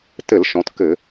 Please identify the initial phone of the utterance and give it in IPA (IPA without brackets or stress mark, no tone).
t